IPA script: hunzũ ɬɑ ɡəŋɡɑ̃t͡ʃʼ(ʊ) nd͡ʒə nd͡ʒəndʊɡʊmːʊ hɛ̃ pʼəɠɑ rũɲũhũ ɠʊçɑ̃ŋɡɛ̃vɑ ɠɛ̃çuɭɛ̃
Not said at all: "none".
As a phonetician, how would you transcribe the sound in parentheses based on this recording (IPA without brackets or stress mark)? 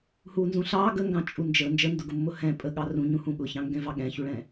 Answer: u